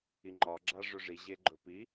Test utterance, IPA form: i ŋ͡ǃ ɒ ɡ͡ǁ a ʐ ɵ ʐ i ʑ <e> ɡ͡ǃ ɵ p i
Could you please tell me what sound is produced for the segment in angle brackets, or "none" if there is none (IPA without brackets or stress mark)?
e